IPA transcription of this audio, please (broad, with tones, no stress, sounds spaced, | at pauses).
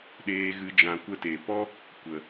ɗ eː˨ ɣ ɨ˨ d͡ʒ ã˨ kʷ ə˧ t e˨ p ɔ˦ | kʷ ə˨